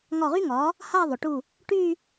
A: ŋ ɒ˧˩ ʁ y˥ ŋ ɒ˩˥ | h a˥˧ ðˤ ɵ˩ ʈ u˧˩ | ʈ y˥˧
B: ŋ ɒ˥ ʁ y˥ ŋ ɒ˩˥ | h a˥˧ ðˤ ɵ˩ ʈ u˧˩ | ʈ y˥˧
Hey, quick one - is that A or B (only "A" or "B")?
A